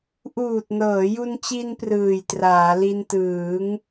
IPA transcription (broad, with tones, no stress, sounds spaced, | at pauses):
ʔ uː˨˩ t̚ n ɤː˩˦ j u˧ n t͡ɕ i˧ n p r ɯː˨˩ j t r aː˩˦ l i˧ n t ɯː˩˦ ŋ